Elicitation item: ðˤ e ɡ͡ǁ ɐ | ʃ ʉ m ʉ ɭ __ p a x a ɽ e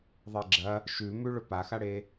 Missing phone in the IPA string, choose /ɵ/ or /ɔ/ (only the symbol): ɵ